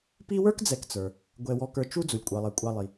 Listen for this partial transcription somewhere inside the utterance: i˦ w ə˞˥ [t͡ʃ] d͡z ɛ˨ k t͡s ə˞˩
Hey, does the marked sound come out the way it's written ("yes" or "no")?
no